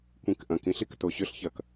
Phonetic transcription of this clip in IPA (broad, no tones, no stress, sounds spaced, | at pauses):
kʷ ĩ k ʔ ɐ̃ k ĩ ɬ i k t o ɕ ʏ ɬ ç ɐ k